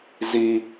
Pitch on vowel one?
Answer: high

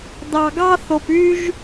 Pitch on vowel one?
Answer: low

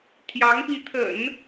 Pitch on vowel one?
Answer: rising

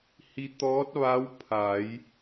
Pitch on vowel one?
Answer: rising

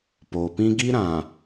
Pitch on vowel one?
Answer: low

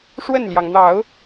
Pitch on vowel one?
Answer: falling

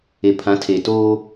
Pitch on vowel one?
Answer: low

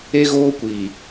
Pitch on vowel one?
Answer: high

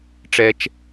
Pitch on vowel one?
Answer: high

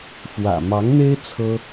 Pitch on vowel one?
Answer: low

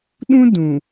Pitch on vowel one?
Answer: high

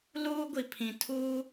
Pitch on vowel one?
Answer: high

